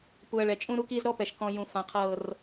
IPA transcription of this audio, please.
p u˨ ɐ̯ ɭ ɛ˨ t͡ʃʼ ũ˦ ɾ u˦ k iː˦ z ɾ ɔ˦ p ɛ˨ ʃ k ɔ̃˨ j ũ˨ f ã˨ qʰ ɤː˦˨ r

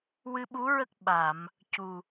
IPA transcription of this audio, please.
w ɨ˧ ɓ u˧˥ ɹ ə˦˥ k̚ ɓ a˨˩˨ m | c u˨˩

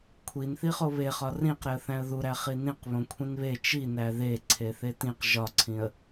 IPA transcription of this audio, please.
kʷʰ i n θ i χ o β e χ ɒ r ĩ q ɾ e ə̯ θ æ̃ ə̯ ð u ɾ æ χ i n ĩ q β õ kʷʰ ĩ n β e t͡ʃ i n æ ð e ǀʰ e θ e t ĩ q ʒ ɒ ǀʰ ĩ ə̯

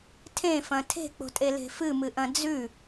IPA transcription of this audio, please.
tʰ ẽ f ɐ̃ tʰ e̤ k͡p o̤ tʼ e l e̤ f ɨ m ɨ ʔ ɐ̃ d͡z ʉ

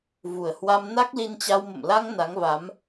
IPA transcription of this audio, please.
v u˨˩ ə̯ h w a˧ m n a˦˥ k̚ l i˧ n t͡ɕ a˧ w m ə̰˧˨ m l a˧ ŋ n a˨˦ ŋ v a˨˦ m

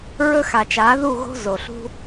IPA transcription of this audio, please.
ɹ ɵ˥ x a˨ t͡ʃ aː˨˥ ð u˥˨ ɣ o̤˥ z o˨ ɬ ṳ˥

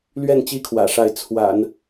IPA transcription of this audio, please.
l ɥ ɛ˥˩ n t͡ɕ i˥ kʰ w ä̰˨˩ ʂ a˧˥ ɪ̯ t͡sʰ w a̰˨˩˦ n

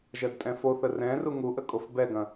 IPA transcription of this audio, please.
ʒ ɜ d tʼ ɛ̃ f o θ ə r ɛ̃ r u ŋ u ʔ ə kʼ o f b ɛ ɡ ɐ̃

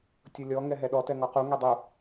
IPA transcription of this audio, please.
tʲ ʊ lʲ ɔ ŋ ɛ ɦ ɛ ɗ ɔ t ɛ ŋ ɔ q u ŋ ɛ dˤ u

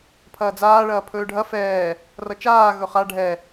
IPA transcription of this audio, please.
pʰ ɐː d͡z aː ɭ ɐː pʰ ɵː ɖʱ ɐ f ɛː | r ʌ t͡ʃ aː ɣ ɵ χ a ɖʱ ɛ

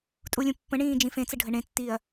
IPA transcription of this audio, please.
tʼ u lʲ ũ pː ə̃ ɳ ĩː d͡ʒ ĩ f ẽ t͡s ə ɖʱ ə ɳ ẽ tː iː ɐ̯

